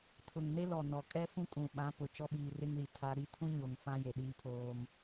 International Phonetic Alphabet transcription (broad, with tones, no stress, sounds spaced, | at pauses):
tʰ ʊ˨ ŋ n e˦ l ɔ˨ n ɔ˨ kʼ ɛ˦ f ũ˦ kʼ ũ˨ ɓ ã˨˦ p ʊ˨ t͡ʃ ɔ˦ ɓ iː˨ r ɪ˦ ŋ l i˨ tʰ a˦ ɾ i˦ tʰ ũ˦ ɲ o˨ ŋ f ã˦ j e˨ ɗ iː˦ pʰ oː˦ m